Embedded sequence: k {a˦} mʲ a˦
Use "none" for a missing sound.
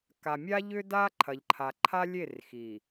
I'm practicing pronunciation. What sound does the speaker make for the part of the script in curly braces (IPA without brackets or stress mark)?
a˨